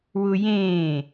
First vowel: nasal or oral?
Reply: oral